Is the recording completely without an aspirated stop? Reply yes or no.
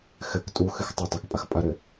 yes